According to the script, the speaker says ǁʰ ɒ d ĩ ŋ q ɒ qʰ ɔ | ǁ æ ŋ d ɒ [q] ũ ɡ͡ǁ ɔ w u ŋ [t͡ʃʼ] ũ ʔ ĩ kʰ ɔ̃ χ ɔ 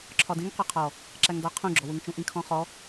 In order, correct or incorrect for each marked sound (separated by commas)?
incorrect, incorrect